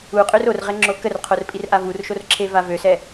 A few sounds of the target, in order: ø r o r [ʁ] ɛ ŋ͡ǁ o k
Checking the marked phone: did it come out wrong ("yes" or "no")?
no